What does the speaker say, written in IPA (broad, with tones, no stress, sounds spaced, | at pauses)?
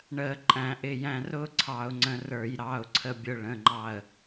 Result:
ɳ əː˧˩˧ ǃʼ æ̃˧˩˧ ʔ ɪ˩˧˩ j æ̃˧ r ʊː˥ ǀʰ ɑ˧˩˧ ʊ̯ ŋ͡ǀ ə̃˧ r ə˞˧˩˧ j ɾ ɑ˩˧˩ ʊ̯ ǀʰ ə˧ bʲ ʊ˧ ɭ ə̃˩˧˩ ŋ͡ǃ ɑ˧˩ ə̯